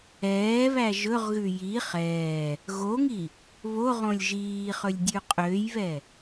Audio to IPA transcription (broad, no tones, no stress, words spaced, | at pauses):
ɛːβæ ʒɵʁɣʉ ji χɛː | ɣoŋi | βoʁõlʲ ʒiːχɵlʲ dʲʉqʼøjβɛ